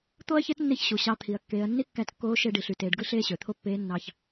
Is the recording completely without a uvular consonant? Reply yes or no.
yes